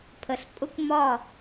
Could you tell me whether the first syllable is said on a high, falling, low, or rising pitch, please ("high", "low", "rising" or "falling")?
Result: low